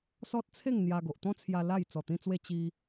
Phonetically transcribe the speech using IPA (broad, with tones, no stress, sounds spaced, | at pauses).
s ɔ˦ t̚ t͡sʰ e˥˧ ŋ n̪ j a˧ ɡ o˨ ʔ t̪ ɔ̃˦ t͡sʰ j a˧ l a˥˧ j t͡s ɔ˨˩ t̪ ĩ˧ t͡s w e˧ t͡ɕ i˧